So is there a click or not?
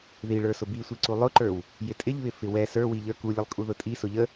yes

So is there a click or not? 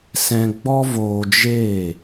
no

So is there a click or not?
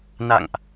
no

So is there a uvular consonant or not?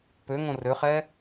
yes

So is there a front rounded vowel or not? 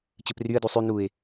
yes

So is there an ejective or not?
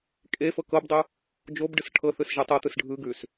yes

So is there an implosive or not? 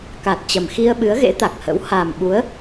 yes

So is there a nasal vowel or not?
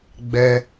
no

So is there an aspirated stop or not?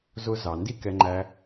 no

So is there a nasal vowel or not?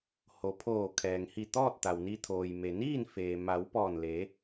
no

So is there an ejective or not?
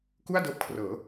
no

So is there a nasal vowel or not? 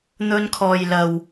no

